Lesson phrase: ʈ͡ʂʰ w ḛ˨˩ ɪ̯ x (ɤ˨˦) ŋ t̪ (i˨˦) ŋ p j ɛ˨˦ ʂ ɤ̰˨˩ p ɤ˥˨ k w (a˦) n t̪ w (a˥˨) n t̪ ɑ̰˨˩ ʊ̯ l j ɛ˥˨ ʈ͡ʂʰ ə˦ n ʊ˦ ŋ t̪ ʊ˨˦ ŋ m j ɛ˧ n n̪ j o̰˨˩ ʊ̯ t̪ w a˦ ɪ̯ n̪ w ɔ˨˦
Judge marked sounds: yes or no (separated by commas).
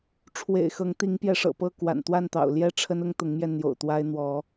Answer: yes, yes, no, yes